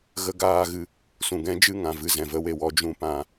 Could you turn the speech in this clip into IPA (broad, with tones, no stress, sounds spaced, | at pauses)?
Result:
ɣ ə˦ ɡ aː˦ ɣ ɨ˧ | s ũ˨ ɡ ɛ̃˦ d͡ʒ ɨ˦˨ ŋ ã˨ v ɨ˦˨ z ɛ̃˨ v ə˧ w e˨ w ɔ˧ d͡ʒ ũ˧ p ã˨˦